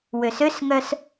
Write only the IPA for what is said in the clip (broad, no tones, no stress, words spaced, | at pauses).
wøsøsŋœs